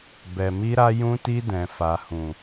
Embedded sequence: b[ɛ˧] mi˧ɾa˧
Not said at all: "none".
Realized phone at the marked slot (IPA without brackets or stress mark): ɛ˨